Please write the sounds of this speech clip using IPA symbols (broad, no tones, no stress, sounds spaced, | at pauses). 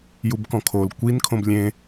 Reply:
j u b k ɔ̃ kʰ o l kʷ i n kʰ õ b lʲ ẽ